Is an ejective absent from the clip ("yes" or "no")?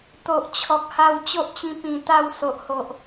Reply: yes